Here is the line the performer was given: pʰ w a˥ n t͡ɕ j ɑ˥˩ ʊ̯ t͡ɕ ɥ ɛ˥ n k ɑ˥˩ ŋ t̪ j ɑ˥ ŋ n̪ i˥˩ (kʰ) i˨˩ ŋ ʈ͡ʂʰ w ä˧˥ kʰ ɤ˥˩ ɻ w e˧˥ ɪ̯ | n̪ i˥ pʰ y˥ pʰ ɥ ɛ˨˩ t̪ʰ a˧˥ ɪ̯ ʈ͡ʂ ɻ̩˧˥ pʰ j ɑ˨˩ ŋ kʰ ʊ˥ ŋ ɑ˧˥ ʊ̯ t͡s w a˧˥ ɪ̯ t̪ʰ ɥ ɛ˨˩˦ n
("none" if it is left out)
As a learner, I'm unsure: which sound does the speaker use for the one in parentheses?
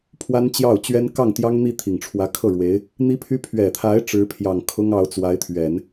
t̪ʰ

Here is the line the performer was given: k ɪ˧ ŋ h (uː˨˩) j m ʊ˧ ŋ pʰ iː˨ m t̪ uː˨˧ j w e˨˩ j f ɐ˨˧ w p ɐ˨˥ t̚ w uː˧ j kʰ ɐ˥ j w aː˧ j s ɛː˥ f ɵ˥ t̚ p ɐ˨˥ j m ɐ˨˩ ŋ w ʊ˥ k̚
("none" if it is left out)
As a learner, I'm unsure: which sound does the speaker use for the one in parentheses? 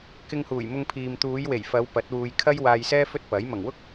uː˨˩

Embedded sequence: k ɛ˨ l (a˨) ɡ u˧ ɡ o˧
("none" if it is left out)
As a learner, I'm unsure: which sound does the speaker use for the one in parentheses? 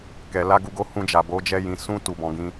a˧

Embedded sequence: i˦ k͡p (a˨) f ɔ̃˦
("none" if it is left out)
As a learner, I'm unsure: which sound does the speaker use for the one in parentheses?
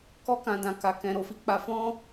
a˧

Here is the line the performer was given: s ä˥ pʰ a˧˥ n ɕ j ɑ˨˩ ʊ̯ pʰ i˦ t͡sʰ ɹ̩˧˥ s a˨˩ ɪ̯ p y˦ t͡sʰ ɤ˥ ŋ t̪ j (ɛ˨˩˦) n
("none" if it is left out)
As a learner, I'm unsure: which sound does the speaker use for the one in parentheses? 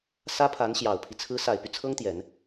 ɛ˨˩˦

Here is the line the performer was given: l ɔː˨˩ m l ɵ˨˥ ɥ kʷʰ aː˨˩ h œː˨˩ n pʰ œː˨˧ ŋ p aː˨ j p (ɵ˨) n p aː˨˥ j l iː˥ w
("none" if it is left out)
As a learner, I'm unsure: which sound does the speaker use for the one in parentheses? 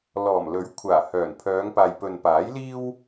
ɵ˨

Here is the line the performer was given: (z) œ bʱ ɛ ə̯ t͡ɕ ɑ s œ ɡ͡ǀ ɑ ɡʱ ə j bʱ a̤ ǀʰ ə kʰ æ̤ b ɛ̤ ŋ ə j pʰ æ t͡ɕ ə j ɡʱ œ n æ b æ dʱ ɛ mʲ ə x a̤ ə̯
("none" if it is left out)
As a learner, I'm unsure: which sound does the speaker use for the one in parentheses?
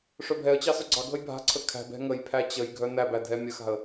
ʂ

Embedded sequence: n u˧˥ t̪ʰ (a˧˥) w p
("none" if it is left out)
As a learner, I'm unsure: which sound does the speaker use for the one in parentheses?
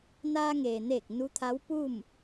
a˧˥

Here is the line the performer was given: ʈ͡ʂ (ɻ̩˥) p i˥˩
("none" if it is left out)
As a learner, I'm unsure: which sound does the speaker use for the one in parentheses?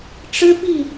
ɻ̩˥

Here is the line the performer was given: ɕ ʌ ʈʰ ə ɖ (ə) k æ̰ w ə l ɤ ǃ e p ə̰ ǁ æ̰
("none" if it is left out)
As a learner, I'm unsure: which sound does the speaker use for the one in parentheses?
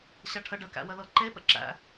ə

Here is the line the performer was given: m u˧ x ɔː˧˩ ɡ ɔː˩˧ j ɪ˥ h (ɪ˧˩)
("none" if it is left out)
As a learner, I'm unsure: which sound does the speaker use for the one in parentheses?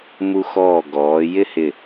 ɪ˧˩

